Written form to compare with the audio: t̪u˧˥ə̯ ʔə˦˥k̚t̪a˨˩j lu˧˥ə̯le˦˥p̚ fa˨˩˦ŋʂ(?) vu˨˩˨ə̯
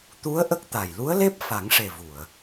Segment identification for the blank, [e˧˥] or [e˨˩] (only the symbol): e˨˩